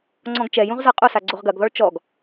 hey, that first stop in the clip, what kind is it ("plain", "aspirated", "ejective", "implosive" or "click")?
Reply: click